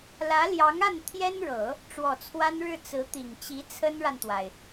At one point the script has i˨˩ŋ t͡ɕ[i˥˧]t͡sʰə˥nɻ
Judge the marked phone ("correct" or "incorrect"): incorrect